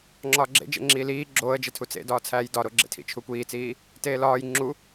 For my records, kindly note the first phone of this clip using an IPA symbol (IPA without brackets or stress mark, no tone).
ŋ͡ǁ